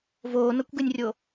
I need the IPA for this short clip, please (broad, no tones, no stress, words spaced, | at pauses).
voːnɤkʷɡenʲrʲo